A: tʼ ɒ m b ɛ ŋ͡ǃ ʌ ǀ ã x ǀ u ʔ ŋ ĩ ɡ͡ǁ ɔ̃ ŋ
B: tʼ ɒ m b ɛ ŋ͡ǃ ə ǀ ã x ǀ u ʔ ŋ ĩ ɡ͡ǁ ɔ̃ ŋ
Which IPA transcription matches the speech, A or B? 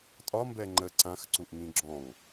B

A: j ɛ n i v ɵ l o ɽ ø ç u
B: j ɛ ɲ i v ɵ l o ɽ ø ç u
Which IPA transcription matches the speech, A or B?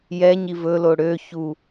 B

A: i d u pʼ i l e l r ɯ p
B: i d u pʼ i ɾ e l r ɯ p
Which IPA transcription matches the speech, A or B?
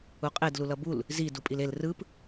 A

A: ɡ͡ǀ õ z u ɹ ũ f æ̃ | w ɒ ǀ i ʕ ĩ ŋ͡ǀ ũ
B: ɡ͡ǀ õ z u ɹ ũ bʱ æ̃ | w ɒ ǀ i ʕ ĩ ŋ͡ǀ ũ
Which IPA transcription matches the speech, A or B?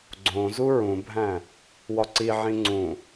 B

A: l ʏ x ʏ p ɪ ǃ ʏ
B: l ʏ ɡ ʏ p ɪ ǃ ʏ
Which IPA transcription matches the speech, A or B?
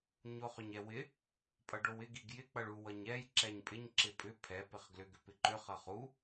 B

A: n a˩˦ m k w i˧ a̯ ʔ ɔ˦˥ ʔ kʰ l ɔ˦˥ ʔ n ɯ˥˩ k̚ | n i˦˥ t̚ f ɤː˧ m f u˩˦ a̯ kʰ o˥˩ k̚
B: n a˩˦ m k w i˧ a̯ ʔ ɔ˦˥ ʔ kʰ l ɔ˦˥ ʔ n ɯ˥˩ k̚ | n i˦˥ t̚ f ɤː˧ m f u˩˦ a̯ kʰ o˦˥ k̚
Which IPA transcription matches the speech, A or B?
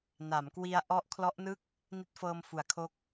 B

